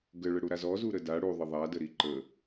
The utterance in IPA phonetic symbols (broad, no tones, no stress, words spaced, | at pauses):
ɡəɭə ɽuɾazɔzu ɾəda ɽuðˤə ðˤadə ɾiǃə